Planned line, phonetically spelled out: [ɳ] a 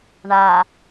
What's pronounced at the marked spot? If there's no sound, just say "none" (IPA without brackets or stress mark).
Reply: ɳ